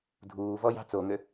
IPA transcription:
dʱ uː v ɔ j ɑ̤ t͡s o ŋ ø

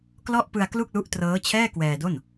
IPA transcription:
k l ɔ˥˩ ʔ p ɯ˧ a̯ k l u˥˩ k̚ l u˦˥ ʔ t r ɤː˦˥ t͡ɕʰ ɛː˥˩ k w ɛː˧ d o˥˩ n

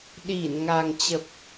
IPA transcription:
ɗ i˧˩ n ŋ a˨˩ ŋ t͡ɕ ə˨˩ p̚

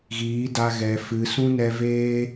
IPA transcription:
ɣ iː˨˦ d a˧ ɣ ɛ˨ f ɨ˨ s ũ˦ n ɛ˧ v eː˦

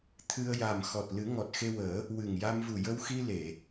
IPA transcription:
t̪ʰ ɨ˧ ə̯ j a˨˩ m x ɔ˨˩ t̚ l ɨ˨˩˦ ŋ ɔ˨˩ t̚ x e˧ w əː˨˩˦ | w ɨ˨˩ ŋ j a˧ m v u˨˩ j ə˧ w x i˧ l e˨˩˨

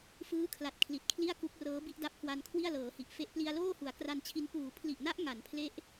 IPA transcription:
f ɯː˦˥ kʰ l a˨˩ t̚ kʰ l i˨˩ t̚ kʰ l i˥˩ a̯ k u˦˥ k̚ r ɤː˦˥ b i˦˥ ʔ d a˦˥ p̚ k w a˧ n kʰ w i˥˩ a̯ l ɤː˩˦ h i˨˩ ʔ f e˦˥ ʔ p l i˧ a̯ l oː˥˩ h u˩˦ a̯ k r a˧ n t͡ɕʰ i˧ n p uː˩˦ pʰ l i˨˩ ʔ n a˦˥ ʔ ŋ a˩˦ n pʰ l e˦˥ ʔ

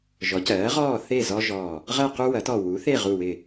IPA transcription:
ʒ ɔ˩˥ c ɜː˩˥ ʁ ɔː˥˨ θ e˥˨ z ɔ˦ ʒ ɔ˧˩ | ʁ ɜ˥˨ q u˦ w ɐ˩˥ t ɔ˧˩ w u˩˥ θ e˥˨ ʁ u˧˩ w ɪ˧˩

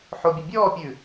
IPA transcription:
ħ o bʲ ɵ bʲ ɔː pʲ ʉ

